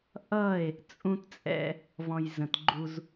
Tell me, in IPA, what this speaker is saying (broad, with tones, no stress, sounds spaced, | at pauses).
ʔ ʌ˦˨ e̯ | t͡sʼ ũ˦ t t͡sʼ ɛ̰˦ | v ɔ̃˨ j z ə̃˨ t ɡ͡ǃ u˦ z